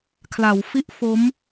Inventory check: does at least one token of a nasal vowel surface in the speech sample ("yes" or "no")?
no